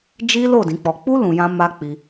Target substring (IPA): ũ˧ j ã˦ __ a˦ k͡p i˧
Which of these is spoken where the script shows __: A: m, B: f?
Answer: A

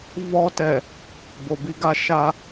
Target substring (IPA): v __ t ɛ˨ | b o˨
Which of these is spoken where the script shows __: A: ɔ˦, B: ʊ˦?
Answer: A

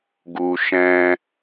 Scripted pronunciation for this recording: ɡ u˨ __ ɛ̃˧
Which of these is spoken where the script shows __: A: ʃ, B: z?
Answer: A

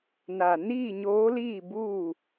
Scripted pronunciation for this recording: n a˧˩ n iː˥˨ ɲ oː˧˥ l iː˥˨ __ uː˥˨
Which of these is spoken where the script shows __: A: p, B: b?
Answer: B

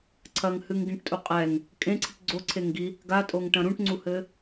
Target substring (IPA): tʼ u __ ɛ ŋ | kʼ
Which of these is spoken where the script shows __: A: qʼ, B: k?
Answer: A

